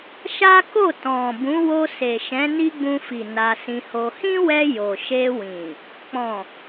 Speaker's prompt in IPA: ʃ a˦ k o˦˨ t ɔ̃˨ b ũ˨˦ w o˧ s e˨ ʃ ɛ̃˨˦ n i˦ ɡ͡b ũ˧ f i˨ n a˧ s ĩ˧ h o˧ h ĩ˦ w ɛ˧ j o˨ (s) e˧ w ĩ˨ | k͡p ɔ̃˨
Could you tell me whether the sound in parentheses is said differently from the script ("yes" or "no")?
yes